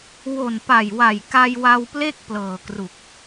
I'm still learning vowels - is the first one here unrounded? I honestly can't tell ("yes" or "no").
no